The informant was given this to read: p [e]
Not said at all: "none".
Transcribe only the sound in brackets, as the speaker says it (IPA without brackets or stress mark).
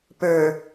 ø